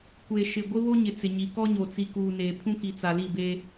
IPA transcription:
kʷe˨ʃɪ˨ ɡʷɪ˦βo˦ɲɪ˨ t͡sɪ˨ɲi˨ kɔ˦ɲo˨ t͡si˨kuː˨ neː˨pʰũ˦ki˨ t͡sa˨li˦˨be˦

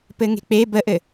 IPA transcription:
pɘŋe̤k͡pe bəʔɘ

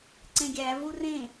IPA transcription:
ǀẽɡʲævu rẽ

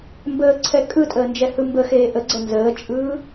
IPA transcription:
mbəːǀʰɛ kʼɯtʼəːnd͡ʒɛhɯ mbəxeː ʔəɡ͡ǀɛ nzəːt͡ʃʼɯː

